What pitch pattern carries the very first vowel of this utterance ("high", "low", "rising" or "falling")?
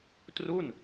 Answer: falling